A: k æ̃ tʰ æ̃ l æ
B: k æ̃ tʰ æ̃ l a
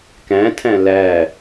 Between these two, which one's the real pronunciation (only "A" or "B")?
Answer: A